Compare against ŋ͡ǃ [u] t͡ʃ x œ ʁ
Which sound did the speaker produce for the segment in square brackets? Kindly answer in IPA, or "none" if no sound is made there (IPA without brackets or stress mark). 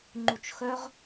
u